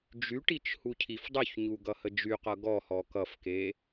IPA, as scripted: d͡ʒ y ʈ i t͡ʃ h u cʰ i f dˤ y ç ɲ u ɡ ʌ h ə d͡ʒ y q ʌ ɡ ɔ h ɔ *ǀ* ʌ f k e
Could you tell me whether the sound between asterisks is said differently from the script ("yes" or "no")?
yes